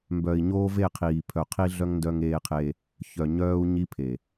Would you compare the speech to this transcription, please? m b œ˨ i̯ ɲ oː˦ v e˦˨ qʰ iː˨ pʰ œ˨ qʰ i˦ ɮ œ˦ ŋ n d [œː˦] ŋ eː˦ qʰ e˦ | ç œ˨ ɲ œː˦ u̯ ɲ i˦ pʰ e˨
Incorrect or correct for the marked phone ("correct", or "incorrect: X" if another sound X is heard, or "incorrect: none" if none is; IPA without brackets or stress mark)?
incorrect: œ˦